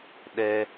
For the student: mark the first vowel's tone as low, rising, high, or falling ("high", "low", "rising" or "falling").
low